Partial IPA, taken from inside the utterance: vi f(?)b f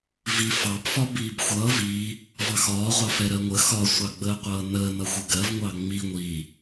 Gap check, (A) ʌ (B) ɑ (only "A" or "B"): B